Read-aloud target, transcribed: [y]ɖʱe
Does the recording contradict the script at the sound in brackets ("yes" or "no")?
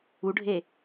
yes